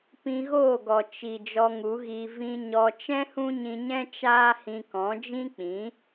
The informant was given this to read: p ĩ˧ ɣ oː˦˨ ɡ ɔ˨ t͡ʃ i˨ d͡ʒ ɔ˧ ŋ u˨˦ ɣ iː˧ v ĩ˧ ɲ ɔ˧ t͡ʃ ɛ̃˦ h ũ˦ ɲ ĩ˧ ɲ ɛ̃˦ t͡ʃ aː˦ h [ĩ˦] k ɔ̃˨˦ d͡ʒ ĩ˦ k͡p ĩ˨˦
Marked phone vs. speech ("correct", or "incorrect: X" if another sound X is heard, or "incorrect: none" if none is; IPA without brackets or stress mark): incorrect: ĩ˧